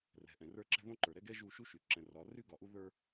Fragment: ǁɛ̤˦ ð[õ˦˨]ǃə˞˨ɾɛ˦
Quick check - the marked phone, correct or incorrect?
incorrect